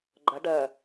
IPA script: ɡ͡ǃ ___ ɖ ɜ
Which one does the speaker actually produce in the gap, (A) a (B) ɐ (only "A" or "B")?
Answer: B